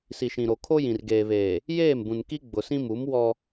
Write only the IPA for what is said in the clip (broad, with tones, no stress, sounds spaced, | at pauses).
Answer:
s i˨ ʃ ĩ˨ ɾ o˨ kʰ o˦ j ĩ˨ r ɡ eː˨ β eː˨ | j eː˦˨ m b ũ˨ n k i˦ ɡ͡b ʊ˨ s ĩ˦ m u˨˦ m w ɔ˦